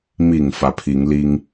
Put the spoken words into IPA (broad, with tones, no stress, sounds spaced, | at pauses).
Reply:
m i˨˩ ŋ f ä˨˦ pʰ i˨˦ ŋ l i˦ ŋ